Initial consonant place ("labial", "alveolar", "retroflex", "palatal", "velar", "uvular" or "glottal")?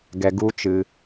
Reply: velar